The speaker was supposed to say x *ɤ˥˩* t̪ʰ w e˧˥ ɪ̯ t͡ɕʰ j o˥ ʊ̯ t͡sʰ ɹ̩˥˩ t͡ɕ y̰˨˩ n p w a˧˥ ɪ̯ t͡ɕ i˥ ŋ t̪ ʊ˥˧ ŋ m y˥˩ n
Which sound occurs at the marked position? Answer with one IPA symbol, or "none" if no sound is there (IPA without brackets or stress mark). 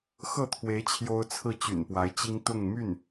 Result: ɤ˥˩